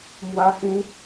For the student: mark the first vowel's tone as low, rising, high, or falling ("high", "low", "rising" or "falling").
high